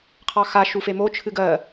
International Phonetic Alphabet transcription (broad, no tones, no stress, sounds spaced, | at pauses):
qʰ ɑ x a ʃ u f e m o t͡ʃʰ ɨ ɡ ɜ